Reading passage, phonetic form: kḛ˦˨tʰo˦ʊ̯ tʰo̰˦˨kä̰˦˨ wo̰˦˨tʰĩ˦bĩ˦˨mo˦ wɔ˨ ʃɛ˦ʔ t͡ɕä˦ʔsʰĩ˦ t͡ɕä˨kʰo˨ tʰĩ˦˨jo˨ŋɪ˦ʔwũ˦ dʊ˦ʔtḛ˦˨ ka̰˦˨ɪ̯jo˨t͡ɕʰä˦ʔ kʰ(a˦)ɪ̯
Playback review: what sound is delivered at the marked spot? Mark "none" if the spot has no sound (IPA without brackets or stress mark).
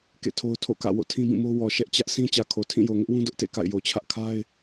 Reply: a˦